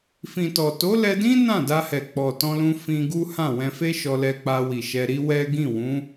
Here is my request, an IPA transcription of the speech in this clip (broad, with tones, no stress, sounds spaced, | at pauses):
f ĩ˨ t ɔ˨ t o˨˦ l ɛ˧ d ĩ˦ n ã˦˨ d a˧ h ɛ˨ k͡p ɔ˨ t ɔ̃˧ l ũ˧ f ĩ˧ ɡ u˦ h ã˦˨ w ɛ̃˧ f e˦ ʃ ɔ˧ l ɛ˧ k͡p a˧ w i˨ ʃ ɛ˧ ɾ i˦ w ɛ˦ ɡ ĩ˦˨ w ũ˨˦